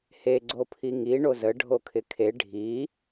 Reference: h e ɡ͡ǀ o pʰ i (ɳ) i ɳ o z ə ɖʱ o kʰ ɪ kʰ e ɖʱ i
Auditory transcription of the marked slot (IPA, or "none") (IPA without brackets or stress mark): ŋ